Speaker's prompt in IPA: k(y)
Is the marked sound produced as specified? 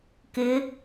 no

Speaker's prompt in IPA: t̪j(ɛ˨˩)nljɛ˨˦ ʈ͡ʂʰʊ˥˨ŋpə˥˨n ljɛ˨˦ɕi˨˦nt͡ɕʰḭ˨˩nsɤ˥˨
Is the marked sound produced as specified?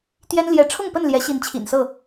no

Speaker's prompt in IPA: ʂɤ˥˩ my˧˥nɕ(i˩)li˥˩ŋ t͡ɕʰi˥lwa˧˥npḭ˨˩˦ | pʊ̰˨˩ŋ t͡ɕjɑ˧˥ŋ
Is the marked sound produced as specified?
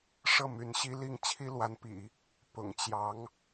no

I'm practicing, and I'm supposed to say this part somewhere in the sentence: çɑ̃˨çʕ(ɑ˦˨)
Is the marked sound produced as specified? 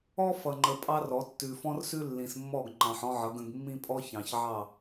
yes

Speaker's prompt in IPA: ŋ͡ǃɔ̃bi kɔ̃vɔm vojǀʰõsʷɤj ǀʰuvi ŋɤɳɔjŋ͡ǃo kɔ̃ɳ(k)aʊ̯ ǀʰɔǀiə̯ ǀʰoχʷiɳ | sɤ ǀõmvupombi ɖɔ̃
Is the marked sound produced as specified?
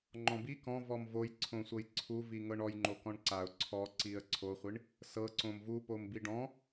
no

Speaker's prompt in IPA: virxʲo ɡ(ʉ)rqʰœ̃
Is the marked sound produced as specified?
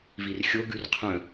yes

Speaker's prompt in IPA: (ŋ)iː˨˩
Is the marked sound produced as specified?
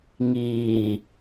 yes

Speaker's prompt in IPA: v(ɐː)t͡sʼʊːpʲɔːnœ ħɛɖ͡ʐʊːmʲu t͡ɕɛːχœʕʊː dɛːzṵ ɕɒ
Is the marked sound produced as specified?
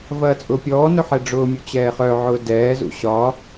yes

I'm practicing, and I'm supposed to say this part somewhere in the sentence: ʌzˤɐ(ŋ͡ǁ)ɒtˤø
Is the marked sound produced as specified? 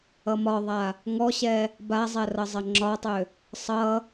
yes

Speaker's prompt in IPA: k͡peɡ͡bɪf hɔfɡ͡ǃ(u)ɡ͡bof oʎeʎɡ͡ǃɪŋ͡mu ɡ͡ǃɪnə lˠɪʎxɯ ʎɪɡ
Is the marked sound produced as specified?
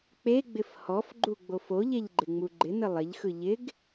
yes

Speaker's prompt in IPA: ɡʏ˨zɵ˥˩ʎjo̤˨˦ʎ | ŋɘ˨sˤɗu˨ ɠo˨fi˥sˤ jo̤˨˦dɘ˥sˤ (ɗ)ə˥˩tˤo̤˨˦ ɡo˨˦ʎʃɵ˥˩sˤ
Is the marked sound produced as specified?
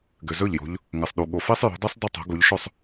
no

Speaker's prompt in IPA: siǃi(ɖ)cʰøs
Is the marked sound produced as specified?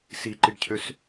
yes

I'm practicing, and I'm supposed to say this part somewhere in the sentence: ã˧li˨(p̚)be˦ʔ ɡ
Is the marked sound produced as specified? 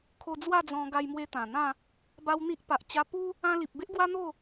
yes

